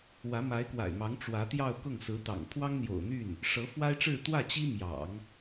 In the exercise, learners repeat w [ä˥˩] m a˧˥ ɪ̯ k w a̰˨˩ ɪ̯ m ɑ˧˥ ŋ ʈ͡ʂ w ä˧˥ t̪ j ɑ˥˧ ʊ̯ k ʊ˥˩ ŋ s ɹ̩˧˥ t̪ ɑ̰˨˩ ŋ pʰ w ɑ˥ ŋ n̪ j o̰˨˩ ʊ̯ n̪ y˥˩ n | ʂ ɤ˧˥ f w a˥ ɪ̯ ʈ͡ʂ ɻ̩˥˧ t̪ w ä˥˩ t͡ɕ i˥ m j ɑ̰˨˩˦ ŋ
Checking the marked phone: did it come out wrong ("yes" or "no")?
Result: yes